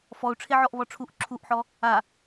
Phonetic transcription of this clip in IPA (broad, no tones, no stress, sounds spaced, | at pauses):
f ɔ u̯ ʈ͡ʂʰ e ʕ ɔ ʔ β ɔ ʈ͡ʂʰ u ʔ ǁʰ u ʔ ħ ɔ | a